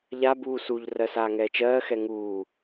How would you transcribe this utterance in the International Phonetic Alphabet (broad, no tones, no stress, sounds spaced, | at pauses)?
ʎ a b uː s u ʎ r ɜ s aː ŋ ɛː t͡ʃ ɜː x ɛ ŋ uː